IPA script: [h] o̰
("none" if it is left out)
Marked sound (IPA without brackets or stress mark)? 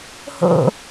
h